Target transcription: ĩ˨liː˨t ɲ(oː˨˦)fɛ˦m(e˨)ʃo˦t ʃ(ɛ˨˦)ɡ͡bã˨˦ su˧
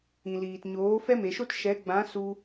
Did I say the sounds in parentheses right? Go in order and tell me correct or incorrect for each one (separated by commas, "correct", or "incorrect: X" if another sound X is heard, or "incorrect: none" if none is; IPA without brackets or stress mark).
correct, correct, correct